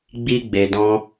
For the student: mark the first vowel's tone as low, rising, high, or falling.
high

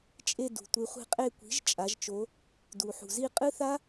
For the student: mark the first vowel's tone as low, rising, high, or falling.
falling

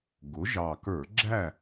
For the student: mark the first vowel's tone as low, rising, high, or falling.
rising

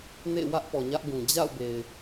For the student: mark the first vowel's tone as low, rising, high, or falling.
falling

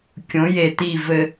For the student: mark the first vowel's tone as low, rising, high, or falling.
rising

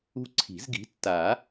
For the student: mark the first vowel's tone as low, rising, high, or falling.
high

